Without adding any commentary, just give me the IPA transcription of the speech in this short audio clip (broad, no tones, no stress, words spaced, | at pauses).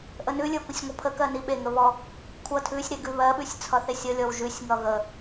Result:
ʔənʉlʲə˞ kʷəsʲŋʷʌpʰəkɜ niɓeŋə βɔ | kʷʰʌ tʰʉsʲ ɾeɡʉβɜɓʉsʲ t͡sʰʌθesʲʌlʲɔw ʒʉsʲŋʌ ɣə